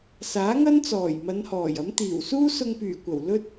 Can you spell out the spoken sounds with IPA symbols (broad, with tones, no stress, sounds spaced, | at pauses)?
s aː˨˥ ŋ ɐ˥ n t͡s ɔː˨˩ j m ɐ˨˧ n h ɔː˨˩ j ɐ˨˥ m t̪ iː˨˩ w s uː˥ s ʊ˧ ŋ p yː˨˩ kʷ ɐ˨˩ w l ɵ˥ t̚